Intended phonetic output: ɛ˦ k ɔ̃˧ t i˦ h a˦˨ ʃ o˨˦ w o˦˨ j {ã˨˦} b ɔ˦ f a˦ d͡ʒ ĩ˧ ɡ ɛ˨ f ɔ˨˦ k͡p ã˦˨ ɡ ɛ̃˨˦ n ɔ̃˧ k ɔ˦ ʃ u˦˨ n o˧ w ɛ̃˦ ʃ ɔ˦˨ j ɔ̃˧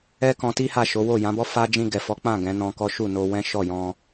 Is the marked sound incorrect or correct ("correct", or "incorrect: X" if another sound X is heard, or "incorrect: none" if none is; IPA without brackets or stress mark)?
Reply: correct